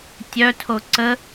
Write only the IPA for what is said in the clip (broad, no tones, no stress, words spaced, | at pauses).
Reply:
tʲœtʰo ǀə